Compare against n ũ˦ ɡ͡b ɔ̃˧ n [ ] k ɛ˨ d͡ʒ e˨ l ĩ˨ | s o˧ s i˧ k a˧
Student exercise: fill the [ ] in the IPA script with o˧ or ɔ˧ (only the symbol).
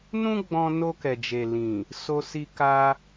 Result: o˧